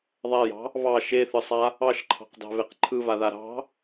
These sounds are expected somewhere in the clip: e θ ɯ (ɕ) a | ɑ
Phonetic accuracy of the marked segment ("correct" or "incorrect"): incorrect